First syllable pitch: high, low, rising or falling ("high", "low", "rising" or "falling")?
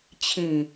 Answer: low